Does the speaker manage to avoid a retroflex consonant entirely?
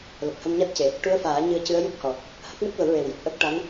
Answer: no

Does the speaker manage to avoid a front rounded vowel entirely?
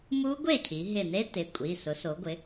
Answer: yes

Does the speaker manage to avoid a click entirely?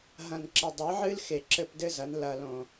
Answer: no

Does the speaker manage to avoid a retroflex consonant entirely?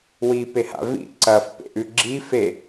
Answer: yes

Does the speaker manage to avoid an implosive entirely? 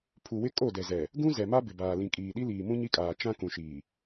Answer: no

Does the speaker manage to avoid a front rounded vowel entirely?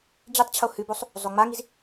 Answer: yes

